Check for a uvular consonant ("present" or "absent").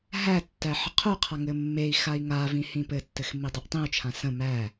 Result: present